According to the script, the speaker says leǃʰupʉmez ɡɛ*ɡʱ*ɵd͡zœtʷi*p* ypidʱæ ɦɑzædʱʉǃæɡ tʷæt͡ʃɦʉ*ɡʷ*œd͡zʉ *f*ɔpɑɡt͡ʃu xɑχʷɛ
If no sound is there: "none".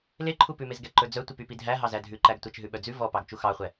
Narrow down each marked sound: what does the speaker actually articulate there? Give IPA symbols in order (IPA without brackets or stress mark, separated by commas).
ǃ, p, ɓ, v